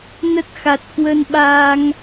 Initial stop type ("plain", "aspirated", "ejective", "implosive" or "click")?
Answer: plain